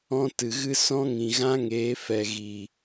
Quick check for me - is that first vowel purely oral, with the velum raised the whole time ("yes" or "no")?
no